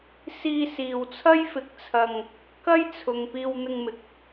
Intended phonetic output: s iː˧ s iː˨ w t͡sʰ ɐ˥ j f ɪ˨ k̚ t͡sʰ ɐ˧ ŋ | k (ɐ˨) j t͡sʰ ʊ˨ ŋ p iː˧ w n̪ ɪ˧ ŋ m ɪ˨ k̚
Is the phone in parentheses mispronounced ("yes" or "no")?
yes